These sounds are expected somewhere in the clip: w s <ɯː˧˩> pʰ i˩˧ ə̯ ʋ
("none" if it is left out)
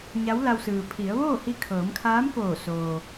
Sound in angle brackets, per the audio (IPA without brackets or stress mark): ɯː˩